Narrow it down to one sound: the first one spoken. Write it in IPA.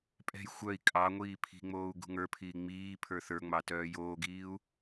pʼ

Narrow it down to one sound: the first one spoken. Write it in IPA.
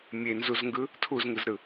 mʲ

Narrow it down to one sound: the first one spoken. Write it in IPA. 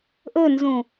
ʔ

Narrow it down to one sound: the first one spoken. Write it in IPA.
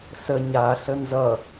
s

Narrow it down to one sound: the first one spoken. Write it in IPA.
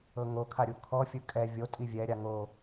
ɤ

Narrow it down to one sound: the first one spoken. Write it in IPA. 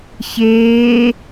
ç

